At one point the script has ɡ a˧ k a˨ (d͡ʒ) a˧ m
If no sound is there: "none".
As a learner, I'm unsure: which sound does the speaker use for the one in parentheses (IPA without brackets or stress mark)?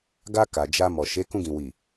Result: d͡ʒ